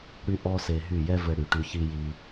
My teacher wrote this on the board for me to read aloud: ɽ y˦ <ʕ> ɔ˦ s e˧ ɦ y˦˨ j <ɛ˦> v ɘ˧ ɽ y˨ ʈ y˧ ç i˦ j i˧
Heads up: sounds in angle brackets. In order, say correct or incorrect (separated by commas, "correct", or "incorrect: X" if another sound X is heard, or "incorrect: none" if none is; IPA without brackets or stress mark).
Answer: incorrect: ʔ, correct